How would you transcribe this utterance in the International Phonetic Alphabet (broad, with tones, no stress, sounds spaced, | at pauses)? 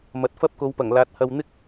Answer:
m ɐ˨ t̚ f ɐ˥ p̚ k o˨˧ w p ɐ˨˩ ŋ l aː˨˥ t̚ h ɐ˧ w n̪ ɪ˥ k̚